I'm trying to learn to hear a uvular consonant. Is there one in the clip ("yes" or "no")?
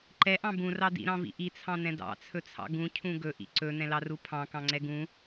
no